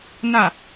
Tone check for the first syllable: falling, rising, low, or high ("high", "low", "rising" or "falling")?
falling